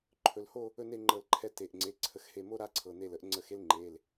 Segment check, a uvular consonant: absent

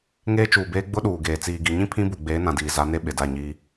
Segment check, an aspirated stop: present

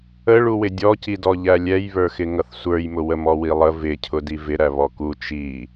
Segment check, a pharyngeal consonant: absent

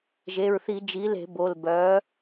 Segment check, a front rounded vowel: present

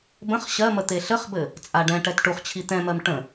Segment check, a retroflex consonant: present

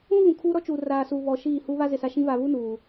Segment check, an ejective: absent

